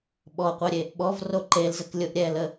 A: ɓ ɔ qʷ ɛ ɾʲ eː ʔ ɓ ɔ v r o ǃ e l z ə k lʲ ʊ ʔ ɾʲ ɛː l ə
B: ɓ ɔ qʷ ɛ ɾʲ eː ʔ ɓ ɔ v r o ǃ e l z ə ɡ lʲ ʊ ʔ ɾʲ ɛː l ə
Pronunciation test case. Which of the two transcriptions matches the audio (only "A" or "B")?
A